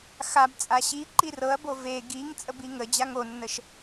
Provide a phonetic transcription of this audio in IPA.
xabt͡sʼa ɕi ǃirɤɐ̯bo ve ɡiŋ t͡sʼəbiŋə d͡ʑaŋonːəʃ

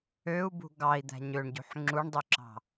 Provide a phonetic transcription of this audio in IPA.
øu̯bṳ ɡɑi̯d̪æ̤ ɲøɳɟṳħ ŋ͡ǁuɳdˤyǁɑ̤

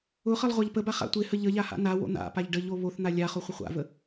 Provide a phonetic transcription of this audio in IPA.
ʊχəlˠ ʁʷaʎpəba χa̰tʷɪhə ʎəʎa ha̰nawo̰ n̪a̰paʎ ɖəʎo βoθn̪a lʲaχo χʷəχʷa̰və

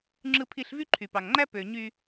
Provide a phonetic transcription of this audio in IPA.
ŋ͡ǁɯ˧pʰi˧ɬ vy˦ǃʰy˨pɑ˨ŋŋ͡ǃæ˦ pø˨ɲy˧

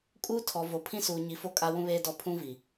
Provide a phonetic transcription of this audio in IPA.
kʼuː˦tʰɔ˨vo˨ pʰĩ˦suː˨ɲi˨fo˦ kʼa˦wũ˦βeː˦dɔ˦˨ pʰũ˦vi˨

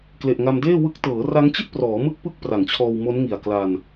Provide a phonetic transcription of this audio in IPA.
kle˨˩ʔŋa˧mdeː˥˩ wɯ˦˥k̚ tɤː˩˦ra˦˥ŋt͡ɕi˥˩t̚prɔː˩˦ mɯ˥˩k̚pɯ˥˩k̚pra˩˦ŋt͡ɕʰɔː˧w mo˦˥nŋi˨˩a̯ kla˧n

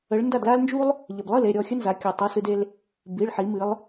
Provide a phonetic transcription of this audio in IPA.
ə˩˧ɭ nda˥˩dla˥lnd͡ʒu˥lˠ | ʎə˩blˠɨ˥˩le˥˩ ɾʲɔ˥˩xʲə˥nza˩˧ kʲu˩tˤu˩˧˩sɨ˧d e˧l | bi˩˧˩ɭħi˩˧mɨ˩˧lˠ

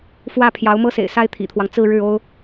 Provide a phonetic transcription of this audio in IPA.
fwä˥˩ pʰjɑ˧˥ʊ̯mɤ˥sḛ˨˩ɪ̯sa˥ɪ̯ t̪ʰḭ˨˩t̪ʰwɑ˦ŋ t͡sɹ̩˥˧ɻɻ̩˥˩o˥ʊ̯

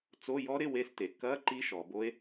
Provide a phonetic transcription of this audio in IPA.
t͡so˧˥˧jɔ˦˥ɾɪ˧˥˧ we˦˥ste˩˧ kɐ˧˥˧ ǃi˦˥ʃɔ˩˧bo˦˥e̯

